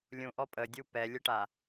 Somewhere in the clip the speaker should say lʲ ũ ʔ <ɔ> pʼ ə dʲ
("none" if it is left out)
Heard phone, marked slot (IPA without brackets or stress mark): ɔ